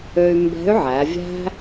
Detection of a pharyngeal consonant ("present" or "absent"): present